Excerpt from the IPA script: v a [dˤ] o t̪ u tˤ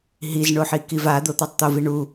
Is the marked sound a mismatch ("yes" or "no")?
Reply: yes